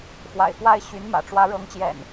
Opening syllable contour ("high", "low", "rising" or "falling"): low